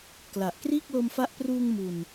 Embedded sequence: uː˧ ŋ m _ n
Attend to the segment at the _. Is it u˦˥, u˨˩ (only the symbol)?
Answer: u˨˩